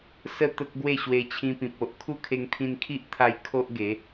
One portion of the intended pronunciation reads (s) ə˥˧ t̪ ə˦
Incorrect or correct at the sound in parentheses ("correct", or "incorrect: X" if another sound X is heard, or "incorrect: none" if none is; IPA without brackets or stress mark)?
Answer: correct